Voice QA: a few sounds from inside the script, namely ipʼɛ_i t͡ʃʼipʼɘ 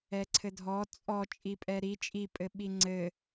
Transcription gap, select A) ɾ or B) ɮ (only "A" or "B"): A